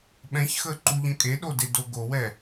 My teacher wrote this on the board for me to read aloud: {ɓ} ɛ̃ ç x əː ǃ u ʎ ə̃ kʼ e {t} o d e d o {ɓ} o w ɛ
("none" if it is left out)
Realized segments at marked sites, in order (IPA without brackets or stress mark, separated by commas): ɓ, ɗ, ɡ